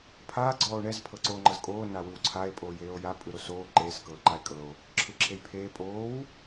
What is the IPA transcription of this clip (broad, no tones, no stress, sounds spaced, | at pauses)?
pʰ aː ɡ͡ǀ ɔː o̯ ɳ ɛ z pʰ ɤ ǀ oː ŋ͡ǃ ɤ z kʼ oː n a w ɯ w ǀʰ a e̯ pʼ oː j eː o̯ j a pʼ ɯ ɾ o s oː ǃ eː s k ɤː ǃ a e̯ kʼ ɤ o̯ | ǁʰ ɯ ǁʰ e j pʰ eː pʼ oː w